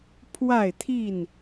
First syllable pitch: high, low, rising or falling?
falling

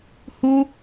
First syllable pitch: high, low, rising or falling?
high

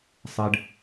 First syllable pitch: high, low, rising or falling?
low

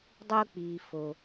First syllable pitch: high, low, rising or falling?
high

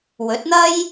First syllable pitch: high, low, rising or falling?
rising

